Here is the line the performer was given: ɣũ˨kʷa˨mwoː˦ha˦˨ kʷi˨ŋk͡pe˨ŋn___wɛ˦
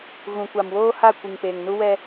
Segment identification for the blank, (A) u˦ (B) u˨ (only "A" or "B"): A